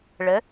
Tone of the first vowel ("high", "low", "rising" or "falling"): rising